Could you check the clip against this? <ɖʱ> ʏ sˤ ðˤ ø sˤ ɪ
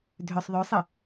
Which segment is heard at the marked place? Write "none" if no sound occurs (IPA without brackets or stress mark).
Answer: dʱ